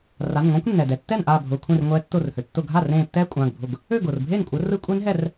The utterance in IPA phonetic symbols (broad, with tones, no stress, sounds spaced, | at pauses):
r a˩˧˩ n ŋʷ ã˦˥ kʷ nː ɛ˩ d ɛ˩ tː ɛ˥˩ n ʔ aː˧˩ bʱ ʊː˩˧˩ kʷʰ ẽ˧˩ r ŋʷ ɛː˨˦ tː ʊː˧˩ r h ø˩ tː ʊ˧˩ ɡʱ a˥˩ r ẽː˧˩ tː ɛː˦˥ kʷʼ ãː˩˧˩ ɡ bʱ ʊ˧˩ ɡ | ø˥˩ ɡ ʊː˩ r bʱ eː˥˩ n kʷʼ ɘ˨˦ r ɯ˦˥ kʷʼ e˦˥ n ɦ ɛ˥˩ r